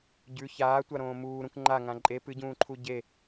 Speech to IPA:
ɟ ʉ ç aː tʷ a ɾ õː m uː ɾ ũ k ŋ͡ǃ a ŋ ã ǃʼ e p ɨ ɟ ũː ǃʰ u ɟ e

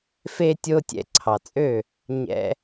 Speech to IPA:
f e˧ tʲ o˧ tʲ ɛ̰˧ ǀʰ ɑ˩ t͡sʼ ø˥˩ | ɲ ɛ̰˧

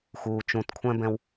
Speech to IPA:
x uː˨ t͡ʃ ũ˨ t kʷʰ ɛ̃˦ b ɛ̃˦ w

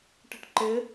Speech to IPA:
ʈ ɪ ʈ ǃ ɪ

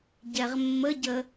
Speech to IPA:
ɟ ɛ ʁ mː ə ɟ ə

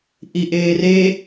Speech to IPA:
ʔ i ʔ eː r e

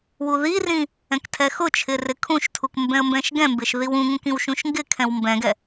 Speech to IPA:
w u ð i r ĩ | ɛ̃ k tʰ ɛ x ʊ t͡ʃʰ ɪ r ɪ kʰ ũ ʃ tʰ u k m b ɛ̃ ə̯ m b ɛ̃ ʃ ɡ ɛ̃ m b ɪ ʃ ð i w ũ ŋ ũ k ĩ w ʃ ũ ʃ ŋ ɡ ɪ kʰ ɛ̃ w m b ɛ̃ ɡ ɛ

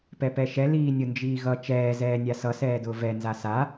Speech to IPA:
p ɛ p ɛ ʃ ɛ l iː nʲ ʊ n d͡ʒ iː ɣ ʌ t͡ʃ ɛː z ɛː nʲ a s ʌ s ɛː d ʊː v ɛ n z a s a

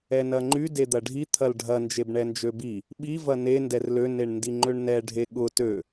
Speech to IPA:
ɛ n ɐ ŋ͡ǃ y d e d̪ ɐ ɖʱ i t̪ʰ ɐ l ɖʱ ɐ n d͡ʒ e b ɳ ɛ n d͡ʒ ø b i | ɓ i v ɐ n e n d ɛ r l ø n e ɳ n d i ŋ͡ǃ ø ɳ n ɛ ɖʱ e ɠ ʊ t ø

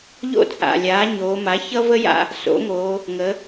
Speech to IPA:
ʎ o̰˥ t͡sʼ a̰˨˩ lʲ aː˩˥ ɲ oː˩˧ m a˩˥ ç ʌ˥ v ə˥ j a̰˦˨ | s o̰˩˥ ŋ oː˩˧ | ŋ ə˩˧

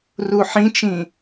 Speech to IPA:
r u ħ ĩ t͡ʃ ĩ

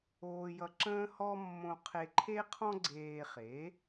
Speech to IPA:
oː˧ j ʌ˧ ǁ ə̃ː˥ h ɔ˥ mː õ˧ qʰ e˧ ǃʰ e˥ qʰ ɔ̃˥ ɡ͡ǀ eː˧ χ e˩˥

